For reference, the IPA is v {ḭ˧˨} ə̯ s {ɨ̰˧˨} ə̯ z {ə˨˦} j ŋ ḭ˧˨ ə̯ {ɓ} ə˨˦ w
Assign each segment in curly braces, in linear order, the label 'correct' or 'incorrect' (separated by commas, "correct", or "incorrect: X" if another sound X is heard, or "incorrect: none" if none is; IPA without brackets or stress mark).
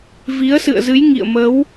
incorrect: i˨˦, correct, incorrect: ɨ˨˦, incorrect: m